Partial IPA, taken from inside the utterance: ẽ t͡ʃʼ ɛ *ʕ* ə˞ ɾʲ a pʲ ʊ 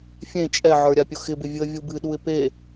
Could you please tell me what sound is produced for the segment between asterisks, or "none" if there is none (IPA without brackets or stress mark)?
ʕ